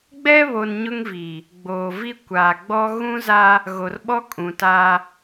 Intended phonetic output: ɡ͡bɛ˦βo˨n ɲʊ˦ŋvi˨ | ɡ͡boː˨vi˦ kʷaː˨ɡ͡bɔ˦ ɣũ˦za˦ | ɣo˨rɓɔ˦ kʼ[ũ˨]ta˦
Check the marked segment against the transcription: correct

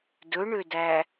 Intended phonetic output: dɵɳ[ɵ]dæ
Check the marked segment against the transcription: incorrect: ø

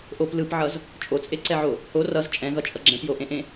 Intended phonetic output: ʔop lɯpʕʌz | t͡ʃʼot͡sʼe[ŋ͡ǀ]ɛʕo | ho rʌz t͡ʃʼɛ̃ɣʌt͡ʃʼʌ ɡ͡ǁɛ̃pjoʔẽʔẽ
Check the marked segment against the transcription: incorrect: ǀ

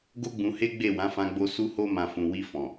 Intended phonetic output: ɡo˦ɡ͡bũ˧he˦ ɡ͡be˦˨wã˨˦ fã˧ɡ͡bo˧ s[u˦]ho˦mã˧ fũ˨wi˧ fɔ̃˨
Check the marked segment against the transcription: correct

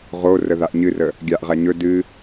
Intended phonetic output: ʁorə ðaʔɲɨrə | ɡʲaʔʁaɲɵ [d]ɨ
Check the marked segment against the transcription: correct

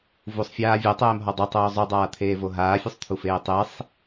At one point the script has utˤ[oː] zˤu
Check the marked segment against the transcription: correct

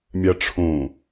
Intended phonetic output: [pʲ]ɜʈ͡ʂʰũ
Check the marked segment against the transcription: incorrect: mʲ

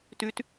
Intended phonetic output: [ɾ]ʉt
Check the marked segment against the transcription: incorrect: t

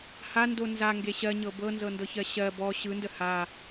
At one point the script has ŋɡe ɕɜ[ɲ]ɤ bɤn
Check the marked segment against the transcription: correct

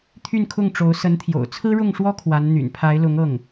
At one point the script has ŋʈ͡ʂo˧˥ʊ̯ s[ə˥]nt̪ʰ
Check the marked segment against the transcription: incorrect: ə˧˥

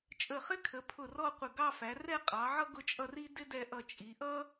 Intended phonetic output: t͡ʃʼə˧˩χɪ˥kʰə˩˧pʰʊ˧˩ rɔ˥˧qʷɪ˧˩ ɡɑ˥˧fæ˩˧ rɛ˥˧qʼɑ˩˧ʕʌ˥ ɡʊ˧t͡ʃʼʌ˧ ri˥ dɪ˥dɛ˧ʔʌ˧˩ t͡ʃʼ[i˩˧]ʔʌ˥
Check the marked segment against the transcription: correct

